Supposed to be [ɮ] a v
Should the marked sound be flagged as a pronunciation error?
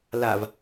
yes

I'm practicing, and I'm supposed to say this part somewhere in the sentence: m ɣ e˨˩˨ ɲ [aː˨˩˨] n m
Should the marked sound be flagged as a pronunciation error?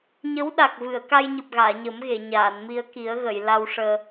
no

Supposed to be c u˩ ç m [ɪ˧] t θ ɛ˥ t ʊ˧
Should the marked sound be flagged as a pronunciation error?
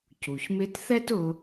no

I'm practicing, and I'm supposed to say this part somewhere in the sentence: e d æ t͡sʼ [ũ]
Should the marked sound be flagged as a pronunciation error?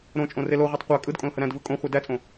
yes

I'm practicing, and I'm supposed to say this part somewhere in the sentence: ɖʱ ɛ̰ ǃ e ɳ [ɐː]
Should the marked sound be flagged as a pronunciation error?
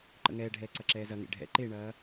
no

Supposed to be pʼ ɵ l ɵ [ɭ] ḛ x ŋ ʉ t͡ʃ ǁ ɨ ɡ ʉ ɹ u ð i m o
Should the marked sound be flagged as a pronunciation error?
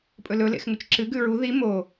yes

